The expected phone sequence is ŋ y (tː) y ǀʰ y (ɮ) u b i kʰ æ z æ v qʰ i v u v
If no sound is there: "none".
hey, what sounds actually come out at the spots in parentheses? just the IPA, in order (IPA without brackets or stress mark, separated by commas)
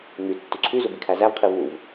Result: tː, z